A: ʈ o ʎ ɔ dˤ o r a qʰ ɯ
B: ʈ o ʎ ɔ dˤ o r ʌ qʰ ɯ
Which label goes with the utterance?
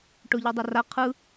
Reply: A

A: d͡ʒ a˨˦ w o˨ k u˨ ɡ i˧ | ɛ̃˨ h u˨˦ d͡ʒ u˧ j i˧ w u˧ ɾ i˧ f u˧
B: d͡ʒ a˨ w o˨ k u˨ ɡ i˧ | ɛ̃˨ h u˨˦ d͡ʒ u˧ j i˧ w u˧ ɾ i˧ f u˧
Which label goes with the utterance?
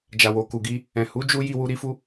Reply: B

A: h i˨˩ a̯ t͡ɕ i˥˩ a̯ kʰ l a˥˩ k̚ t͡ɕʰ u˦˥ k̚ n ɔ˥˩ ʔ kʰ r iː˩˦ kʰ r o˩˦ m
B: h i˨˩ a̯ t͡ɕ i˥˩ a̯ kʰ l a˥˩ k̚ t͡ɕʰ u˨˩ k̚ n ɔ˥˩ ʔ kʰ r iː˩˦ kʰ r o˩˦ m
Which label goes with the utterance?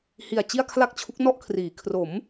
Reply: A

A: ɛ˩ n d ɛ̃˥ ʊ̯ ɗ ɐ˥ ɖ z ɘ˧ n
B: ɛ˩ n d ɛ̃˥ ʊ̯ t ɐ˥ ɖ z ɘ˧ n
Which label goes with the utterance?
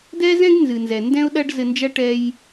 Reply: A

